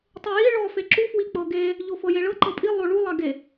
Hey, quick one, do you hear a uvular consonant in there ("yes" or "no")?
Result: no